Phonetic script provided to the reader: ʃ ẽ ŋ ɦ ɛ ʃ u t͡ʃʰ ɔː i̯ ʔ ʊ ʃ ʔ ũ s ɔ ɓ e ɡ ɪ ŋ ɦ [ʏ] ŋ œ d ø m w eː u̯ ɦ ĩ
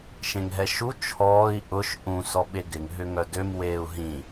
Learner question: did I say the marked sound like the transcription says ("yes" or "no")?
yes